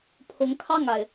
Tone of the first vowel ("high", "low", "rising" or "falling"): rising